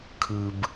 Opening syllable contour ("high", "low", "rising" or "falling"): low